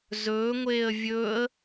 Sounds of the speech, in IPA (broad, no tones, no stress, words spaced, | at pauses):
zɵːŋʷeːə̯ vʲɵːə̯